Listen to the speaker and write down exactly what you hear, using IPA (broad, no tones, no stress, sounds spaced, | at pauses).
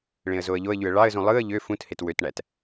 ɭ ẽ ə̯ z o ə̯ ʎ o ə̯ ʎ y ə̯ ɭ ɑ ə̯ z ũ lˠ ɯ ə̯ ʎ ø f ũ t h e t w ø t ɳ æ t